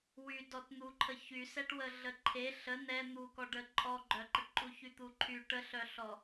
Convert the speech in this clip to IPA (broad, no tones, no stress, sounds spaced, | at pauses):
w y d ɔ t n̪ u ǃʰ ə ç y s ɛ ʈ w ə ɮ ə ǃʰ e ɬ ə n ɛ n̪ u k ɔ ɖ ə ǃʼ ɔ ɡ͡ǃ œ ǃ ə ʈ ǃʼ u ç y t̪ u ǃʰ y ʈ ə ɬ œ ɬ ɔ